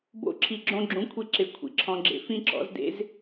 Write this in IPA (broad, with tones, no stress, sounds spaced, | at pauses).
b o̰˦ ǁʰ i˨ ɡ͡ǁ õ˧ ɡ͡ǁ ũ˨˦ kʷʰ i˧ ǁ ɪ˧ kʷʰ ḭ˨ ǁʰ ɔ̃˧ ɡ͡ǁ ḛ˧ f ĩ˦ ǁ ɔ̰˨˦ z d ḛ˦ z